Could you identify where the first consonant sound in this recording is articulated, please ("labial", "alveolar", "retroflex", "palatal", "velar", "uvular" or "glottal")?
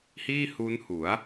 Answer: glottal